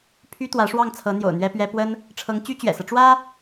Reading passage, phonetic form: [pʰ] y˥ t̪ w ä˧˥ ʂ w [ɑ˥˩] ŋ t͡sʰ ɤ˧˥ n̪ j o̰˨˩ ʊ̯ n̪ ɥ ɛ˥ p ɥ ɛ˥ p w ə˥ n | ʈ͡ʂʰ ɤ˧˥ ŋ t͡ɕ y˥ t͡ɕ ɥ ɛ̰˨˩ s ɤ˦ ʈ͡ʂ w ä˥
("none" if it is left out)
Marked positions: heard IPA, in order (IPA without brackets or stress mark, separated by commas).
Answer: pʰ, ɑ˥˩